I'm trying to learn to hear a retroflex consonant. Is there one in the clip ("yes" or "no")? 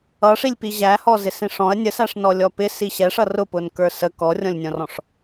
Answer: yes